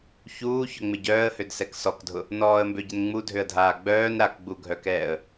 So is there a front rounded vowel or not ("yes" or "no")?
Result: yes